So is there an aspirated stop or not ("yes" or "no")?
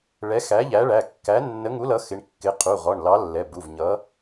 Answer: yes